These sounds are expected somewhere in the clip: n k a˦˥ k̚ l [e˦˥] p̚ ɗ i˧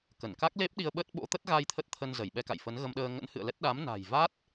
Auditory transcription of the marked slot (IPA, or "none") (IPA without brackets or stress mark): e˦˥